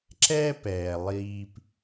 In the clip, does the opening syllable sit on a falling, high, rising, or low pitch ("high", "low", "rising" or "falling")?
high